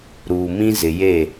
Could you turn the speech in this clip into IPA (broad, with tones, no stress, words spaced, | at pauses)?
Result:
ɾuː˨mĩ˦ zɪ˨je˦˨